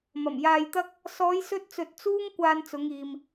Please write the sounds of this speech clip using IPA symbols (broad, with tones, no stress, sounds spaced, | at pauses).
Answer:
m ɐ˨˩ m j aː˧ j t̪ ɐ˥ k̚ | s ɔː˨˧ j s ɵ˧ t̚ t͡s ɵ˨ t̚ t͡s uː˥ ŋ kʷ aː˧ n t͡s ʊ˨˧ ŋ iː˨ m